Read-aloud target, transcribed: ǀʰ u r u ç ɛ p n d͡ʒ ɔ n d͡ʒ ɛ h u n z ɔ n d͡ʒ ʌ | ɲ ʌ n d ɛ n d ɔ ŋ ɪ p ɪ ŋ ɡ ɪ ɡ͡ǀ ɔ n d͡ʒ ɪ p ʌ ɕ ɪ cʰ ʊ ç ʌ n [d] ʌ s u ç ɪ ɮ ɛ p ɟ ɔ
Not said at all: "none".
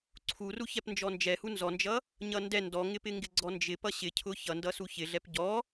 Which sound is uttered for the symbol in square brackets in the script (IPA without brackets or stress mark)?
d